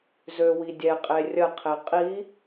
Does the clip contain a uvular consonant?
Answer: yes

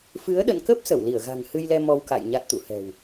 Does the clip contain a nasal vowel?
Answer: no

